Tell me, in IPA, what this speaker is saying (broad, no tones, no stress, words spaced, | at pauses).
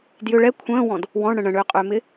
djʏ ɭɛ kʷʰə̃ːwɔ̃d | wɔ̃ɳɽə̃ ɳə̃ɳʏːqʼʏːmɪ